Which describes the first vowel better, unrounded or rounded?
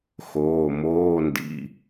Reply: rounded